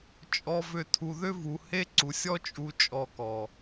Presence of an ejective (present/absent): present